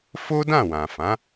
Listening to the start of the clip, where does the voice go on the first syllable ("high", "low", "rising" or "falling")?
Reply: high